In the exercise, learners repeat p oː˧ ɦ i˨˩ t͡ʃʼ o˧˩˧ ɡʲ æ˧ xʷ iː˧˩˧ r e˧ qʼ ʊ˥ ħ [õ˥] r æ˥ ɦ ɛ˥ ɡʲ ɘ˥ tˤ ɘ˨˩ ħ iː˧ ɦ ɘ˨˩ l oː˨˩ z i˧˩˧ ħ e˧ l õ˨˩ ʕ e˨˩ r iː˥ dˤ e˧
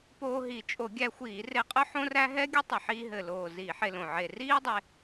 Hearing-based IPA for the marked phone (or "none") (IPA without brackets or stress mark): õ˥